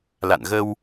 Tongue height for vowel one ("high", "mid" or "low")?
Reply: low